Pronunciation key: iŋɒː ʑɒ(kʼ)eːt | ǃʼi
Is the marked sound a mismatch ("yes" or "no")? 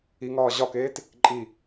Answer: yes